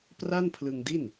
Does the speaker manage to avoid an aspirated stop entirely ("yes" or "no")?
no